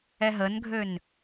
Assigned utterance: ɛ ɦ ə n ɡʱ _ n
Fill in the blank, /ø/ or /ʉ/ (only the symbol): ø